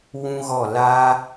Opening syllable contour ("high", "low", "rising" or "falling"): high